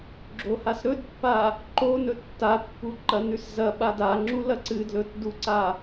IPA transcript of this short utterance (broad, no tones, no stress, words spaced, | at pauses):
ɡ͡ǁohasɾɵdpːa | ǃonɵ tːapːu ǃɐnʉszɐɓa daŋ͡ǁu lɐǀɨdlɵt duǀa